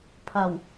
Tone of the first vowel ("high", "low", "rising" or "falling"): low